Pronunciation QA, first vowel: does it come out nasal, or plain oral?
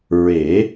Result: oral